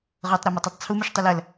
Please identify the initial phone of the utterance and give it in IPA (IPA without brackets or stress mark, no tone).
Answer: ʁ